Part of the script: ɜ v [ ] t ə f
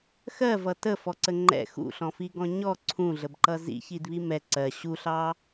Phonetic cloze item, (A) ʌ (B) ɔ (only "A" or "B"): A